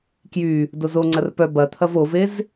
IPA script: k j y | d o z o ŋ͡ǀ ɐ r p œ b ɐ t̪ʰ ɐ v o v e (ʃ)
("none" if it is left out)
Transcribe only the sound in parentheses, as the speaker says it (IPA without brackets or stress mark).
z